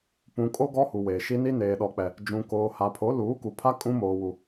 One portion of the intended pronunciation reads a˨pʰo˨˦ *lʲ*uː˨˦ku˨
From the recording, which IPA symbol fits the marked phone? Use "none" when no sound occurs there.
l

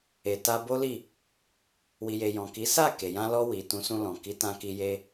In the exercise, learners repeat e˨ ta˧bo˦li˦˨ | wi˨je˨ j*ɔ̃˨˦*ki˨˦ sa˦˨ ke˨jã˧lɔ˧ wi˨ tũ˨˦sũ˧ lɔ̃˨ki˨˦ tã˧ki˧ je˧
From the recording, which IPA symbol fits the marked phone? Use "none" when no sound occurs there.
ɔ̃˨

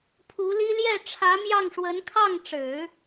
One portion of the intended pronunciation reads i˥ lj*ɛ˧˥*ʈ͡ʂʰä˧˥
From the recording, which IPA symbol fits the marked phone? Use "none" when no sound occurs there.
ɛ˥˩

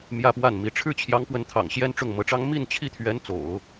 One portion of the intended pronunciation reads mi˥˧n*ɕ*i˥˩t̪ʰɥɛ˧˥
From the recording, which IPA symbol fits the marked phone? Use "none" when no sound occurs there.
t͡ɕʰ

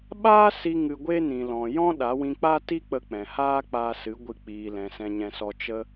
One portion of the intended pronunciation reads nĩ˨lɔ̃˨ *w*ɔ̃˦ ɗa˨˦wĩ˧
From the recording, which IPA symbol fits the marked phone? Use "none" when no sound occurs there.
j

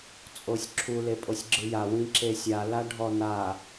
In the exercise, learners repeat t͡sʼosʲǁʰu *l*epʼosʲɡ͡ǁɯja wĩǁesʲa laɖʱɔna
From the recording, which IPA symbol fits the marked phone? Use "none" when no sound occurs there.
l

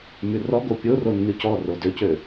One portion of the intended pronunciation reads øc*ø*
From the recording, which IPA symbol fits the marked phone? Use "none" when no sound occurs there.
ø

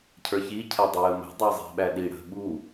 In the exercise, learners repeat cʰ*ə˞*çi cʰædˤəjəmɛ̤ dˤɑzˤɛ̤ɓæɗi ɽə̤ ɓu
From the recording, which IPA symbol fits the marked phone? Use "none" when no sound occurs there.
ə˞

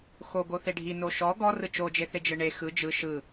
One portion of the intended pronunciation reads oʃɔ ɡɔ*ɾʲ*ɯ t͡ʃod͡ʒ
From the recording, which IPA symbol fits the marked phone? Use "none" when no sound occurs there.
r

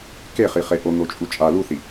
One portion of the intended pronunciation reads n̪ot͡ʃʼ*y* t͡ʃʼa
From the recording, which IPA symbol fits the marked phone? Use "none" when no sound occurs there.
u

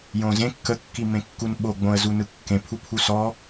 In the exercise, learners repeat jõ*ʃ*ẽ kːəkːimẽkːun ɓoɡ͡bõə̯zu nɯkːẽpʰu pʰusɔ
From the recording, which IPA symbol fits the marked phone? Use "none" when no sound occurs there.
z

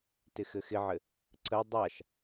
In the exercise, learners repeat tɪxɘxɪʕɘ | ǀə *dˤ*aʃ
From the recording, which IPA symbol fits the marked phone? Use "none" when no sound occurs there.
dˤ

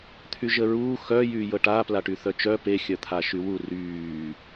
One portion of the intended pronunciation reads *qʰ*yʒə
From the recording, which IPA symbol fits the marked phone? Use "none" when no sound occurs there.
t̪ʰ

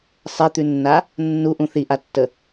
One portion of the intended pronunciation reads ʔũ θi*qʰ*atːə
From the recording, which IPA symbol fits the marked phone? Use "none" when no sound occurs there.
ʔ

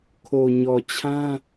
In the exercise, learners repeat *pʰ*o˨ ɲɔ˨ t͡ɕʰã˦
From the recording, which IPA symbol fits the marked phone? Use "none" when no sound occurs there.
kʰ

